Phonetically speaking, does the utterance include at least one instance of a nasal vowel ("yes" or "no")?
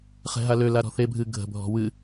no